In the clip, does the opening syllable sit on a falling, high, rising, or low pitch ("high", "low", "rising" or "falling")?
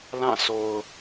falling